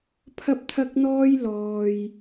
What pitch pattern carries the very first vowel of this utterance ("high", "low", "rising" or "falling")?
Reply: high